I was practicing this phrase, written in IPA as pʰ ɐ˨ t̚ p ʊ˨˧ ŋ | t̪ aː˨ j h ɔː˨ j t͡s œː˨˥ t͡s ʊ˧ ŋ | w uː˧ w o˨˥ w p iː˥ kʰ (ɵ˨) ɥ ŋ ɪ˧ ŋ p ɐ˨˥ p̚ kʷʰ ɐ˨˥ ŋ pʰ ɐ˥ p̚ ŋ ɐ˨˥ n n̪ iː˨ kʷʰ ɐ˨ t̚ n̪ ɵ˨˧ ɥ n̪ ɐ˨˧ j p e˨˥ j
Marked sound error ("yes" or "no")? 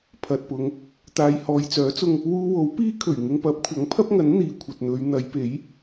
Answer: yes